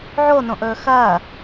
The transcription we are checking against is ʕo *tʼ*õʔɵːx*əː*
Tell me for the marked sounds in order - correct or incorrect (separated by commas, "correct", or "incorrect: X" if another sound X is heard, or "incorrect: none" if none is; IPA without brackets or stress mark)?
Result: incorrect: n, incorrect: ɐː